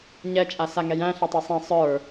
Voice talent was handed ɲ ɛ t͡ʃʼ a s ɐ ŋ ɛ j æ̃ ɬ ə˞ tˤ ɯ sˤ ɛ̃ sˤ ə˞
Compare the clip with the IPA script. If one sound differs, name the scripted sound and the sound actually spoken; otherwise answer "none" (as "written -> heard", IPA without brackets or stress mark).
ɐ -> a